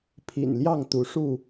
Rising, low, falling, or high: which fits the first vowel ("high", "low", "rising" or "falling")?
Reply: low